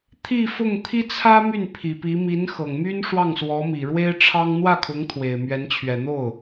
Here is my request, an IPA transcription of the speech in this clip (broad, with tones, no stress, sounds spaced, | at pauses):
t̪ʰ i˥˧ f ʊ˥˩ ŋ t̪ʰ i˥ t͡sʰ ä˥ m y˥˩ n pʰ i˨˩ p i˧˥ m i˧˥ n x ɤ˨˩ ŋ m y˥ n ʂ w ɑ˥˩ ŋ s w ɔ˧˥ m i˨˩ ɻ w e˥ ɪ̯ ʈ͡ʂʰ ɑ˥ ŋ n̪ w ä˥˩ kʰ ʊ˧˥ ŋ t̪ʰ w e˨˩ ɪ̯ m ɥ ɛ˧˥ n t͡ɕʰ ɥ ɛ˨˩ n̪ o˥˩ ʊ̯